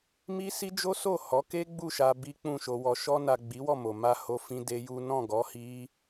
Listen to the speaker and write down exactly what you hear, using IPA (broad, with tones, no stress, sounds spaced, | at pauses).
m i˦ s i˦ d͡ʒ o˦ s o˦˨ h ɔ˨˦ k e˦ ɡ͡b u˦˨ ʃ a˧ b i˦ k͡p ũ˦˨ ʃ o˧ w ɔ˨ ʃ ɔ˧ n a˨ ɡ͡b i˨˦ w ɔ˦˨ m o˨ m a˧ h o˦ f ĩ˦ d e˦ j u˦ n ɔ̃˦˨ ɡ ɔ˨˦ h i˦